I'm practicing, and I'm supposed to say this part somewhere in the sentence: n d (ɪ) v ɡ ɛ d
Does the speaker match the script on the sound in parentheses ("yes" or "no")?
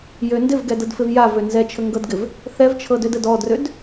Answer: yes